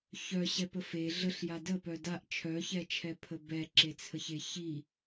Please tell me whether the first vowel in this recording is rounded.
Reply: yes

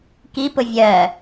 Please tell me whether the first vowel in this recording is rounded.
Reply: no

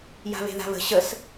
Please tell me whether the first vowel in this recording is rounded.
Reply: no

